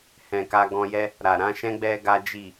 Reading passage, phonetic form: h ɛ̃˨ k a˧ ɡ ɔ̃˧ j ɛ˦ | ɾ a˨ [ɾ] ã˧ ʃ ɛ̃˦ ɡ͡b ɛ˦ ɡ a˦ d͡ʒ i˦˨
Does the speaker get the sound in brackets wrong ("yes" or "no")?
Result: no